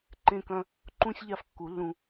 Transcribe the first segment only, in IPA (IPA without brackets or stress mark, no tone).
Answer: ǃ